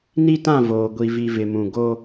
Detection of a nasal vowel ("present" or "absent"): present